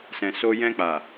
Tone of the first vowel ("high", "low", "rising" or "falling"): low